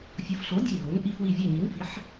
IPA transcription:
fʲo˨˥fɬo˨˥ dʲe˦˨ɦo˨˥n ʔi˦fwi˦˨ vʲɛ˦˨ɲi˨˥nfi˨˥ħ

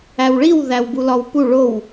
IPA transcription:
æwɭiw ðæwbulɒwpu ɭow

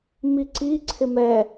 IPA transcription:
miǀi ǀʰɪmɛ

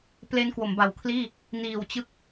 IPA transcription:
ple˦˥n kwo˩˦mba˨˩wkʰliː˥˩ | niː˨˩wt͡ɕɯ˦˥k̚

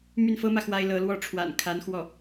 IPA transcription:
my˥˩nfɤ˥mä˨ xwa˥ɪ̯lɤ˧˥lwɔ˥ ʈ͡ʂʰwa̰˨˩nkʰa˧˥n xwɔ˥˩

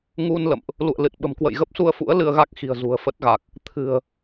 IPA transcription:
ŋu˧n lə̰˧˨mʔ | lṵ˧˨ə̯lɨ˨˩t̚ɓə̤˨˩m kwə̰˧˨jɣə˦˥p̚su˧ə̯fṵ˧˥ə̯ lɨ˧ə̯ɣa˦˥k̚xi̤˨˩ə̯ zṳ˨˩ə̯fə˦˥t̚ ɣa˨˩k̚ | t̪ʰɨ̤˨˩ə̯

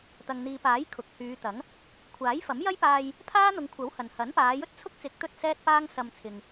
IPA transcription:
t̪ɐ˨ŋn̪iː˨paː˨˥j kʰʊ˨k̚hyː˨˧t̪ɐ˨˥ŋ | kʷʰaː˨˥jfɐ˨˥m jɐ˥jpaː˧j | pʰaː˥n̪ʊ˨˧ŋkʷʰɐ˨˥w hɐ˨n hɐ˨˥npaː˨˧ jɵ˥t̚t͡sʰʊ˥k̚t͡sɪ˨˥k̚ t̪ɵ˥t̚sɛː˥t̚paː˥ŋ sɐ˧mt͡sʰɪ˨ŋ

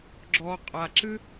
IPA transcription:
ɡ͡ǁɔ qʼaǁɨ

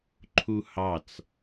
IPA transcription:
ǃʰuhɑt͡s

